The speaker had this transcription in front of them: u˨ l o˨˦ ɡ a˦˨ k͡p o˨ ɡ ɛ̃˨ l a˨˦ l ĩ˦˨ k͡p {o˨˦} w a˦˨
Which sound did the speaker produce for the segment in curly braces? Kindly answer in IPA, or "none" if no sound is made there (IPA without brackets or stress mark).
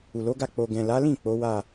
o˨˦